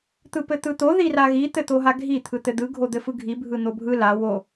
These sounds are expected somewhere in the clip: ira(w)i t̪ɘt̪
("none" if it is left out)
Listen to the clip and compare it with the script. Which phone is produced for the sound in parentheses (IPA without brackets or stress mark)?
ɣ